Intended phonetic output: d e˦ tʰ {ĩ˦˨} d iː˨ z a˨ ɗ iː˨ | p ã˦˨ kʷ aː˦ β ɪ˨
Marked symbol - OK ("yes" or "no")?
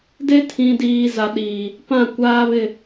no